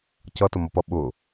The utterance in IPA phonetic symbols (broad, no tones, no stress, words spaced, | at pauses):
cʌtʊmʌpʌ ɓʊ